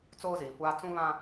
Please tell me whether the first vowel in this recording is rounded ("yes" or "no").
yes